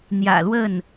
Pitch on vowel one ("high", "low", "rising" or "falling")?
low